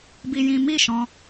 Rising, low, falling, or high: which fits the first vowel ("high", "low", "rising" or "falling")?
high